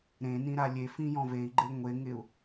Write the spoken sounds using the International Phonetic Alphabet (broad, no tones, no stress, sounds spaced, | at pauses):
ɾ ẽ n ĩ ɾ a lʲ e f ĩ j ɔ̃ v e i̯ ɡ͡ǃ e ŋʷ e ŋ ɪ u̯